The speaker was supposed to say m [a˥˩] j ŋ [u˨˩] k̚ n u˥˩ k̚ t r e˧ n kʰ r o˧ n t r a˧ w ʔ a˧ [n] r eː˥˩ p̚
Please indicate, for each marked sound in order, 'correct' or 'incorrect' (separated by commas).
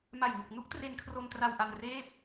incorrect, incorrect, correct